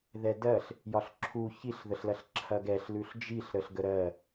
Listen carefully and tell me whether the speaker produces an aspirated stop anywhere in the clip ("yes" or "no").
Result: yes